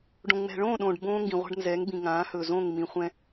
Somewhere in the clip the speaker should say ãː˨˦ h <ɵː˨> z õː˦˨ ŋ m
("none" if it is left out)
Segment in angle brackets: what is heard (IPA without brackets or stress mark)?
ɵː˨